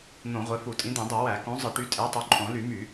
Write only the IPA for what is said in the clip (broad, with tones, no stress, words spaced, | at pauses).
n̪õ˧˩˧ʁʷe˨˦fu˧˩˧ tʼĩ˨˦d̪ẽ˧˩˧dˤo˧˩˧ wæ˧˩˧ kõ˨˦ zˤɯ˧˩˧ʈy˨˦tʼe˨˦tˤo˨˦ ǃʼõ˧˩˧ly˧˩˧my˧˩˧